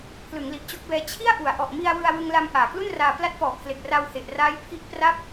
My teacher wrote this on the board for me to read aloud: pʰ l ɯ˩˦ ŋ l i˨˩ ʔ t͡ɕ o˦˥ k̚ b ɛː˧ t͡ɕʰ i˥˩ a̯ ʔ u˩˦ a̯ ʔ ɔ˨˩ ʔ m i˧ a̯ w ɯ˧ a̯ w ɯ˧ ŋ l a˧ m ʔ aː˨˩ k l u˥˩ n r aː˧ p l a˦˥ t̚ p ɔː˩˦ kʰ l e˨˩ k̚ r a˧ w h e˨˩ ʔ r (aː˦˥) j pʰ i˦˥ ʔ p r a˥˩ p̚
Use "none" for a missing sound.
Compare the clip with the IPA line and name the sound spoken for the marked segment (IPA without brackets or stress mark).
aː˦˥